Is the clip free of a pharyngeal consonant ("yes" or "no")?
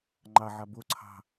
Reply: no